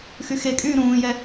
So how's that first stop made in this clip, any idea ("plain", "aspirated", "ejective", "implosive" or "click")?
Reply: ejective